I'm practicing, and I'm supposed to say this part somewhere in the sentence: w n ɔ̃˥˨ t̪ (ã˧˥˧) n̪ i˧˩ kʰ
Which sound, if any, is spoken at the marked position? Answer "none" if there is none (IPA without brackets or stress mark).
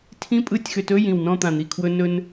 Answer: ã˧˩